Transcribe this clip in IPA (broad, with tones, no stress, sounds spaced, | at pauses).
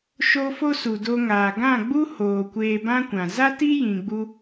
ʃ o˦ f o˦ s u˨ d o˧ ŋ aː˨ ɡ ã˦˨ ɡ͡b u˦ h oː˨ kʷ eː˧ b ã˦ kʷ ã˨ z a˦ t i˦ j ĩ˧ ɡ͡b u˦